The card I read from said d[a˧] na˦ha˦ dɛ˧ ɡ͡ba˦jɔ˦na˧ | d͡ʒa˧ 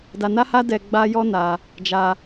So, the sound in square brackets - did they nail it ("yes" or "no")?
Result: yes